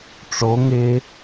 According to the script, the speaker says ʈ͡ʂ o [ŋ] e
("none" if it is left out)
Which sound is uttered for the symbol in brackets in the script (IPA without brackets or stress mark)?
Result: ŋ